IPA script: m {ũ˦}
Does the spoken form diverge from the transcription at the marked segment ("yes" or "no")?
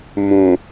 yes